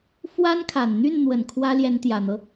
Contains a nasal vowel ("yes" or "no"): no